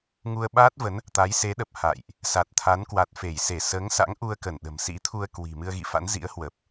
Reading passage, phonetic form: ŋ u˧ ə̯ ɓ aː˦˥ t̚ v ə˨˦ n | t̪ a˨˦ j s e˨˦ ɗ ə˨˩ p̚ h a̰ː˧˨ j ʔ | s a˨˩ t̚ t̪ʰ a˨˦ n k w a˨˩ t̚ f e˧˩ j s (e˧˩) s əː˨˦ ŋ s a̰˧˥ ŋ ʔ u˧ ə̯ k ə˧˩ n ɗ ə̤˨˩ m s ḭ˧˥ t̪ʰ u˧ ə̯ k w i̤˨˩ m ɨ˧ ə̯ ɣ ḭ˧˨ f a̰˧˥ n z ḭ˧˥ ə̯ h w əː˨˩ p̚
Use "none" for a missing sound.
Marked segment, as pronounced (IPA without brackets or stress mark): e˧˩